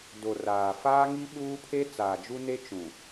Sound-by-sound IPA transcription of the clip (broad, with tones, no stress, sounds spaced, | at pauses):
d o˨ r aː˨ f aː˦ ŋ i˦ ɓ uː˦ pʰ e˦ t͡s aː˨ d͡ʒ u˦ n e˦ t͡ʃ ũ˨